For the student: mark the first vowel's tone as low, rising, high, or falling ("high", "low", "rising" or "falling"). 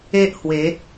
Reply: high